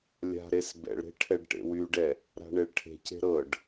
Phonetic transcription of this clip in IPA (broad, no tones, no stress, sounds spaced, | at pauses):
lʲ a̤ ɾ e s b ɛ̰ ɭ ɾ e̤ ʈʰ ɛ ɖ ʈ ḛ w y ɖ ɛ | ɾ a̤ ɳ e ɭ ʈʰ e̤ c e̤ ɾ ɤ ɖ